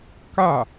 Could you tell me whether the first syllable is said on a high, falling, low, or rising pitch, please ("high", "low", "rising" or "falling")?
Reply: falling